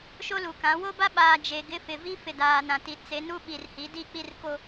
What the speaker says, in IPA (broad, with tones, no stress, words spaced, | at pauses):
ʃo˦lu˨kã˨˦ wo˦ba˦ɓaː˨ d͡ʒe˨ɡɪ˦ fɪ˨vi˦ fɪ˨daː˨ nã˨ti˨ t͡se˨˦ nu˦ɓi˨rhi˨˦ di˦˨k͡pi˦˨rko˨